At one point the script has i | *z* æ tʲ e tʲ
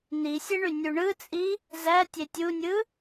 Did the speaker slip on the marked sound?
no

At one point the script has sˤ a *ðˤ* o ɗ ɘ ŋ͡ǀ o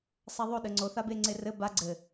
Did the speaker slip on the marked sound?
no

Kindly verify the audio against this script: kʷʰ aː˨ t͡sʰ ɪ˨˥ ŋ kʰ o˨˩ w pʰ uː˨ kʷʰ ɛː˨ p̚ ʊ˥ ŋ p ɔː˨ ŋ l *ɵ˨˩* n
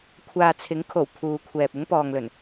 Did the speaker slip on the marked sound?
no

